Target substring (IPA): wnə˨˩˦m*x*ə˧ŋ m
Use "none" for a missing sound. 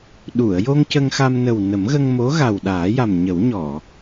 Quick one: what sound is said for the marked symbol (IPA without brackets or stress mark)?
ɣ